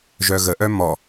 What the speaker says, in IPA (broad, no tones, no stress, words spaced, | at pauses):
ʒœɣəʔœ mɔ